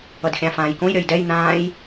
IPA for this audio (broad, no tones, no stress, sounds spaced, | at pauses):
ʌ d xʲ ã f ãː j k õ j ɾʲ ʌ j d ɛ j n̪ ãː j